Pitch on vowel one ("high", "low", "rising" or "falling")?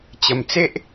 low